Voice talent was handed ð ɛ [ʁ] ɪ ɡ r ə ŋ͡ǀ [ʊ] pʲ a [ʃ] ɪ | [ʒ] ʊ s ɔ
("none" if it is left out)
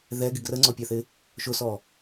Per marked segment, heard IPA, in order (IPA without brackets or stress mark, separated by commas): ɡ, ɔ, θ, ʃ